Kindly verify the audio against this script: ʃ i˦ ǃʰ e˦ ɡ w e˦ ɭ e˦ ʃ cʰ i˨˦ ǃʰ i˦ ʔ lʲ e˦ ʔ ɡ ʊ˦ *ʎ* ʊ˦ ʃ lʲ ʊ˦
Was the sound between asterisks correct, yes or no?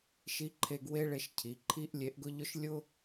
yes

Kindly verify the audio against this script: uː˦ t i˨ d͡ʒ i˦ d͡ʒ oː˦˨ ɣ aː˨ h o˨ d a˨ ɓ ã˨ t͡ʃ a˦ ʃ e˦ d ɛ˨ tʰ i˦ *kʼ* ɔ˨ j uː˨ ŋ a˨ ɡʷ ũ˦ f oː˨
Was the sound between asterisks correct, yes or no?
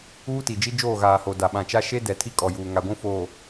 yes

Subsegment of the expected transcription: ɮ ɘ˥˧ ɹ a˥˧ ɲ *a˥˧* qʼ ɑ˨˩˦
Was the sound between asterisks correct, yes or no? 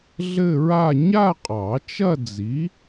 yes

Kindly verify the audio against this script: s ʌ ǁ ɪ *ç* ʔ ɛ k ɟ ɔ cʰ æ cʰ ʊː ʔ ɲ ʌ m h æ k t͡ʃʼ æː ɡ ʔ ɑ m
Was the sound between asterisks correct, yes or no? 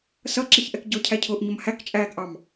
yes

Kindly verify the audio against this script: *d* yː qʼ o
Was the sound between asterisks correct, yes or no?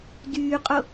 yes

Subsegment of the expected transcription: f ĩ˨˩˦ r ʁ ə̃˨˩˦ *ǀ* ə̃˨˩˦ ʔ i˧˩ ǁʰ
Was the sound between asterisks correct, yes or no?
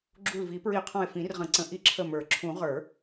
yes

